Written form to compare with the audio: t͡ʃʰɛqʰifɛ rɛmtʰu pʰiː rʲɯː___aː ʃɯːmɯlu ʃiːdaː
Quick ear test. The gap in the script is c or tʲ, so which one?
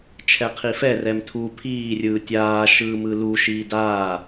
tʲ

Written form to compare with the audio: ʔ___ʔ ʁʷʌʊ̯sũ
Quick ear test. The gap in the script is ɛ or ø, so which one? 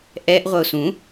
ɛ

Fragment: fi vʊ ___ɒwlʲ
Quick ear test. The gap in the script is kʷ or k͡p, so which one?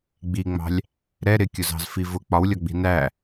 k͡p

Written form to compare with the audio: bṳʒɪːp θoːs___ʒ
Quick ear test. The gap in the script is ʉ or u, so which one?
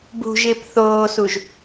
u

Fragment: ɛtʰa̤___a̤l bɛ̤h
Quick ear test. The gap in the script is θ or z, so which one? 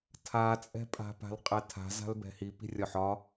z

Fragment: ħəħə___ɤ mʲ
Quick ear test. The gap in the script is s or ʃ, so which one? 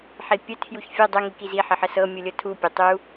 s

